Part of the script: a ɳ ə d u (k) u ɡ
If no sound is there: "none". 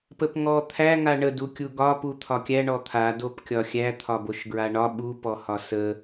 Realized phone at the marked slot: kʲ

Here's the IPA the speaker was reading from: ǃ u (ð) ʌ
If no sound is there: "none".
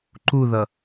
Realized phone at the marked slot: ð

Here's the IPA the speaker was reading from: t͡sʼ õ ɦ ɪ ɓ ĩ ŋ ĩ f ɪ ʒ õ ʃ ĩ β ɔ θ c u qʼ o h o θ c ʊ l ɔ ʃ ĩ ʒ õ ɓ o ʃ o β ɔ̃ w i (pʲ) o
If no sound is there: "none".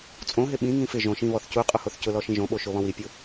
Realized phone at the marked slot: pʲ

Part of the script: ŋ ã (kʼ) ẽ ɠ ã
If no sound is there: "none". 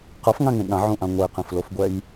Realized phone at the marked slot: ŋ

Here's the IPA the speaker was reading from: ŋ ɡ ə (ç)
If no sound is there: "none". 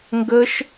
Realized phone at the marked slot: ʃ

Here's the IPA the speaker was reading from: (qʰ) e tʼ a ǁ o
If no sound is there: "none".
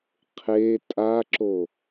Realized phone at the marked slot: qʰ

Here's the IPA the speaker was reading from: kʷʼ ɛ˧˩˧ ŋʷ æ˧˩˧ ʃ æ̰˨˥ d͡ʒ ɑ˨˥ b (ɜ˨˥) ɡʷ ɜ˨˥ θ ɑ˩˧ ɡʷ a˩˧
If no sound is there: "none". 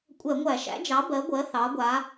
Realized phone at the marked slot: ɜ˨˥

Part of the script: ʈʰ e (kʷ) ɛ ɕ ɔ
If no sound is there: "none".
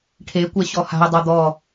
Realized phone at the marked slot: kʷ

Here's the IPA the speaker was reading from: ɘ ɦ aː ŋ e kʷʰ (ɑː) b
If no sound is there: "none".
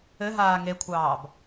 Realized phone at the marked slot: ɑː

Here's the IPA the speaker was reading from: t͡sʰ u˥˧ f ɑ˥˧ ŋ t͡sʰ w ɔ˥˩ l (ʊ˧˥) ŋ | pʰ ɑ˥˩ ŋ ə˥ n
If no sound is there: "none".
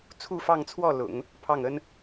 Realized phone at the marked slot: ʊ̰˨˩˦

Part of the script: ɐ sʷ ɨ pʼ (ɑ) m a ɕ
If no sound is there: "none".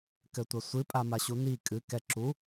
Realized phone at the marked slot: a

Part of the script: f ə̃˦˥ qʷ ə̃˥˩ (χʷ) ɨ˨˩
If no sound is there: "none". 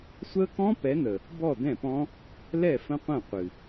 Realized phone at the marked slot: qʷ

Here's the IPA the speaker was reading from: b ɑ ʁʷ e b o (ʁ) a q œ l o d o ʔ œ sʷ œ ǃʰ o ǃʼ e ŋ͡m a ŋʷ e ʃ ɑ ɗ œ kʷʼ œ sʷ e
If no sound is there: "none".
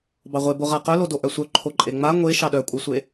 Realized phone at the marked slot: ʁ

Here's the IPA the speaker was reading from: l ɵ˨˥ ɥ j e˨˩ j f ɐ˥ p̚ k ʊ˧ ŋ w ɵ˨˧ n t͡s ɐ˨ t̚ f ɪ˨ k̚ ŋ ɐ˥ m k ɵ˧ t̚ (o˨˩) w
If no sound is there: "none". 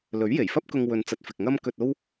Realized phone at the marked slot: o˥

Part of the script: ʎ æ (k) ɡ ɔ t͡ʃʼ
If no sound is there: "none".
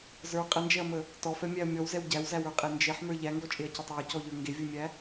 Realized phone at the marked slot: ŋ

